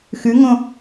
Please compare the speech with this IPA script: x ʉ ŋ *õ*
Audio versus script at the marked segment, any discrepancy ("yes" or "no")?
no